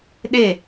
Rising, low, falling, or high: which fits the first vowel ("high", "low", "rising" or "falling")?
falling